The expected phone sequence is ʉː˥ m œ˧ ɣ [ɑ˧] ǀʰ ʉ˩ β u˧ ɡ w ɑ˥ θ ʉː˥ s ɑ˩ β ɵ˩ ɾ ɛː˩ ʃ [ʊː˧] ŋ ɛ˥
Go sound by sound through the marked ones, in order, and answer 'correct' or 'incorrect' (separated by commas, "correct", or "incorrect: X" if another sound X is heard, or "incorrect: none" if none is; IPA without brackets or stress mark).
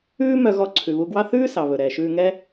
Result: incorrect: ɔ˧, incorrect: ʉː˧